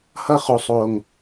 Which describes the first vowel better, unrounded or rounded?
unrounded